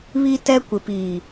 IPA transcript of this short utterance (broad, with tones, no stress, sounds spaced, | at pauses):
β i˦ t ɛ˦ kʷ ɪ˨ p iː˨